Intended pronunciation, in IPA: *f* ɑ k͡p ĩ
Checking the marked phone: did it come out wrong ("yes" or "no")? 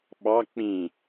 yes